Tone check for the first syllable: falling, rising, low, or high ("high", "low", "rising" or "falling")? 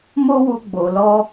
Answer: high